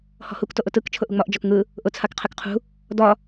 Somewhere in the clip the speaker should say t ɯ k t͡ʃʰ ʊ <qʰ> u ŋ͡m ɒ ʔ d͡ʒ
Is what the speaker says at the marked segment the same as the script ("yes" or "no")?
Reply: no